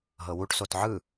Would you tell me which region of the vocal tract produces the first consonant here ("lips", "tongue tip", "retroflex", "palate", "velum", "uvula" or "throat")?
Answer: throat